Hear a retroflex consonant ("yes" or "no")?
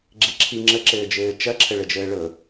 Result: yes